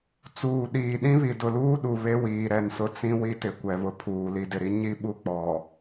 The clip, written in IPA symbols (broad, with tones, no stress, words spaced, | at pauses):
t͡suː˨ɗiː˨ ɗĩ˦βi˨dʊ˨luː˦ ɗu˨βe˦ wiː˨ɾɛ˦˨nsʊ˦ t͡sĩ˦wi˦tɪ˨ kʷɛ˨βʊ˨pʰuː˨ li˨dɪ˨ɾi˦ ɲi˦ɓu˦ k͡pɔ˨